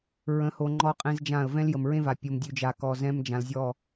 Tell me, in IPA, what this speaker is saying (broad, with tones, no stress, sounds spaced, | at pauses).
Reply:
ɹ ə̃˨˦ h o˨ ŋ͡ǃ ɔ˦ qʼ ẽ˦ z d͡ʒ ã˦˨ ə̯ v ɛ̃˦ l j ə˨ m ɹ ẽ˦ v a˨ pʲ o˨ m dʲ ʉ˨ d͡ʒ a˨ k ɔ˨ z ɛ̃˦ m d͡ʒ ã˨ l zʲ ɔ˦˨